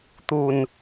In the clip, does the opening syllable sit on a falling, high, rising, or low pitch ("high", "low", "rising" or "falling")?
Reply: low